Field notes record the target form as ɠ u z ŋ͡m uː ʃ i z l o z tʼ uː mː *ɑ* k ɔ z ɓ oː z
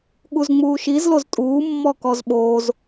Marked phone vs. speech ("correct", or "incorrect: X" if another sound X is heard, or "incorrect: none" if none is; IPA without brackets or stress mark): incorrect: ɔ